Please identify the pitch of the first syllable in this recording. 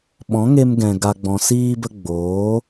rising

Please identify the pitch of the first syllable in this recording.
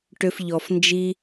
low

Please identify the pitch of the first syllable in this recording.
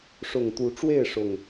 low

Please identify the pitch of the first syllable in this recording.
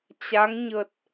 rising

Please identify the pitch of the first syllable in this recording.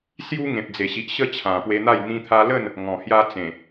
high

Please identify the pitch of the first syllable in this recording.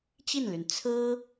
falling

